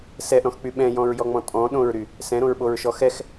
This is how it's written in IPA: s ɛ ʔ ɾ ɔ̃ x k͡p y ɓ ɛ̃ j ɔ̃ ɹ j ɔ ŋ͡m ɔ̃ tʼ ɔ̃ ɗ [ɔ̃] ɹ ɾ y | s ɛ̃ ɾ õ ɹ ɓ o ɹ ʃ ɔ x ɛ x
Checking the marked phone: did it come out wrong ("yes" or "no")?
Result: yes